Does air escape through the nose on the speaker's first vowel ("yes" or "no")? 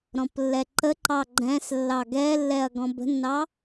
yes